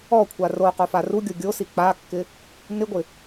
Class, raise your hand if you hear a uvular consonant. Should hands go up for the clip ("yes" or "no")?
yes